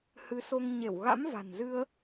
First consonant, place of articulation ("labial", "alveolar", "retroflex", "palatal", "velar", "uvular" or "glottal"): glottal